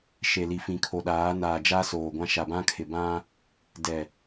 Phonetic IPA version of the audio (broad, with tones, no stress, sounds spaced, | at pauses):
ʃ e˨ l i˨ f ĩ˨ kʰ o˨ ɗ aː˨˦ n aː˨ d͡ʒ a˦ s oː˨ ɡʷ ã˦ ʃ a˨ b ã˦ kʰ ɪ˨ b ã˦ | d ɛ˨